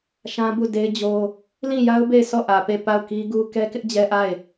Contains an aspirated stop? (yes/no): no